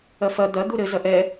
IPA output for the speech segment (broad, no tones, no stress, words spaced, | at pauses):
ɐfɐ d̪ɐ d̪uɾɘ zɐʔɛ